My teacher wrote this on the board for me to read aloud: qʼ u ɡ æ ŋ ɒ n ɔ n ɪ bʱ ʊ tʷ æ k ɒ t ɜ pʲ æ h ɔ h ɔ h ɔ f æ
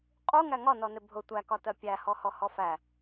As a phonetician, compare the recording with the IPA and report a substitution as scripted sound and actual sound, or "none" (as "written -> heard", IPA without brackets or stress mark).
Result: ɡ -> ŋ